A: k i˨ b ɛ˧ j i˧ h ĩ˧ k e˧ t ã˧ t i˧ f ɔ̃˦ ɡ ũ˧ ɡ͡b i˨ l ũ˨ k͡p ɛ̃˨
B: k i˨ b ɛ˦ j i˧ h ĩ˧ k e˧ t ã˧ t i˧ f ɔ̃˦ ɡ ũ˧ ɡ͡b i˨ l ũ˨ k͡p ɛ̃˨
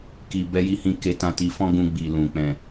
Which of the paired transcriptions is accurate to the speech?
A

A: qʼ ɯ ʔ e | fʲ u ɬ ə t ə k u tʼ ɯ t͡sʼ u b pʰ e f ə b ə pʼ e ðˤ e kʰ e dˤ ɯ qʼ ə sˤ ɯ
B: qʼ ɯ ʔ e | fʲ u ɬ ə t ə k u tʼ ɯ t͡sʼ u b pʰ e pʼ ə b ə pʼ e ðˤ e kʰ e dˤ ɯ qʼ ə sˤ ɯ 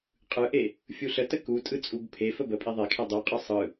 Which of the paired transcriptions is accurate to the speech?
A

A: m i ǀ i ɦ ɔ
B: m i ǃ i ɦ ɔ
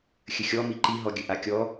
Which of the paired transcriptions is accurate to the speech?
B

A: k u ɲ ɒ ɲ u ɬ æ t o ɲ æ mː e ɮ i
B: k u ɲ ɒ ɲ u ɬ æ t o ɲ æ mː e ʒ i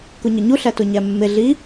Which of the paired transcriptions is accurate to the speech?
A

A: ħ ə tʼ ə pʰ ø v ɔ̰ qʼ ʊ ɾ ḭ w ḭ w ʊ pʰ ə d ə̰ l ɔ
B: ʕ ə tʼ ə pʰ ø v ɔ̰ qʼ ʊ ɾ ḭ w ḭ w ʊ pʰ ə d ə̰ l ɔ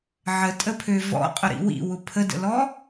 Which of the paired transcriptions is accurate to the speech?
B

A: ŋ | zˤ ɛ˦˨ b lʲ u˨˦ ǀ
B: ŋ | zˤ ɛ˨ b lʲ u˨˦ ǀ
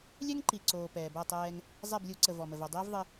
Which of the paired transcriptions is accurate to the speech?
A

